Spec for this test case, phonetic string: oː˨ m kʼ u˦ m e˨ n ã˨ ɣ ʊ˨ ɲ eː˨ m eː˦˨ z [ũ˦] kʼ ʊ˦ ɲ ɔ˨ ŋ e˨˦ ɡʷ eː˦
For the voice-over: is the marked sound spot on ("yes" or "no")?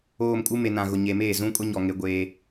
yes